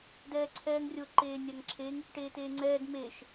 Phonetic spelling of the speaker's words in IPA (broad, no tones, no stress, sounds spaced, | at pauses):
d ɛː ǀʰ ɛː ŋ rʲ o ǃ eː nʲ a ŋ ǁʰ e ŋ | ʈ eː t eː ŋ͡ǀ ɛː d m e ʃ